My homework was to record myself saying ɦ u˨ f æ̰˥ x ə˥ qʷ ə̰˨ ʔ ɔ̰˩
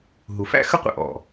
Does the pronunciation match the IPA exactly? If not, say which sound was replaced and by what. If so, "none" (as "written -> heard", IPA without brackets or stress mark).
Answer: none